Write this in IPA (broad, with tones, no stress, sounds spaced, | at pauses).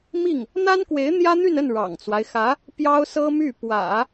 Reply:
m i˥˩ ŋ | n̪ a˥ n k w e˧˥ ɪ̯ n̪ j ä˥ n̪ y˥˧ n ə˥˩ n ɻ ɑ̰˨˩ ŋ t͡s w a˦ ɪ̯ x ä˧˥ | p j ɑ˥ ʊ̯ s ɤ˥ m y˥˩ p w ä̰˨˩˦